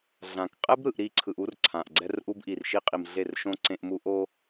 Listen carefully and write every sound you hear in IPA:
ɮã˨k qʼɛ˦bɾɯ˨ʔ ɾi˦˨ǀʰɯ˨ʔu˦r ǀʰã˨ʔɡ͡ǀɛ˦rʔu˦bʔi˨r ʃi˦qʼi˨mɮe˦˨rʃõ˦ ǀẽ˦ʔmu˦ʔo˦

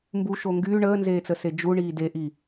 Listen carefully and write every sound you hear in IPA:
mbuʃo ŋɡyː ɳəːnzeːt͡səse d͡ʒuɳiː deʔi

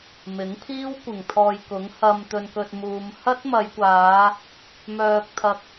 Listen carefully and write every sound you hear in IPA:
mɪ˨˥ŋpʰiː˥w kʷɪ˨˩ŋt̪ʰɔː˨j kʊ˨˥ŋhɐ˧m t̪ɵ˧nkɵ˧t̚muː˨˧m hɐ˥t̚mɐ˨˧jkʷaː˨˧ | mœː˧k̚t̪ʰɐ˧k̚

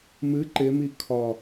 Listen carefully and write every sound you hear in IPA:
mɨ ǃɪmi kʰɒ

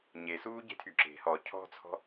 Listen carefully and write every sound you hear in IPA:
ɲesuːɟe̤tʰy ǁe̤ hɔ cʰɔ̤t͡sʰɔ̤

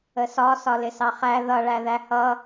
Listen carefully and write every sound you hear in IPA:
əsɒ sɒlɪsɑχæ ðʌ ɭæðæhʌ

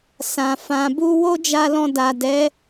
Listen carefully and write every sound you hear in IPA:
sã˨ fã˨bu˧ wo˦d͡ʒa˧lɔ̃˧ da˨dɛ˨˦

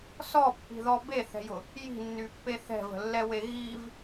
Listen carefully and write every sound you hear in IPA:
sɔpːi̤ðɔ beθɛ̤jʊ | ji̤nːypːe θɛ̤və̤lːɛwe ɣiv

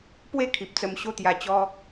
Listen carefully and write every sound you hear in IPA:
pwe˥˧ kʰi˨p̚t͡sə˧mɕo˦ t̪ja˧t͡ɕɔ˦

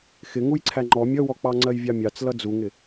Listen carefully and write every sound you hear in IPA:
xɪ ŋujǀʰæŋ͡ǃɔ mʲʌwɔk͡pɑ ŋ͡ǀɜjvʲɑmʲɑt͡s lʌd͡zuŋɪ

